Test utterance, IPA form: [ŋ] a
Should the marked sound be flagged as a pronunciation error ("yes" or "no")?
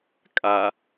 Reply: yes